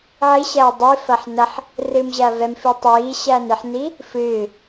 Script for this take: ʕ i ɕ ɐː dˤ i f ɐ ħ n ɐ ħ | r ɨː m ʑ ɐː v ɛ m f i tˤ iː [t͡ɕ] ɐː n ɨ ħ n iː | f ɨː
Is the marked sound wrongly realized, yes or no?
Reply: yes